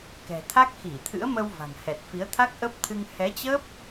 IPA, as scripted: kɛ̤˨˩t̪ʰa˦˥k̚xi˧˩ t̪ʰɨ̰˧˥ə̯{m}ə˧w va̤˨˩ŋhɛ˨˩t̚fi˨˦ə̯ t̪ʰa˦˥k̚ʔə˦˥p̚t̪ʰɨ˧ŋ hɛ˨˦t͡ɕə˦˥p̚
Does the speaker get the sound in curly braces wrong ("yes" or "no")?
no